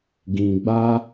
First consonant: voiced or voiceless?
voiced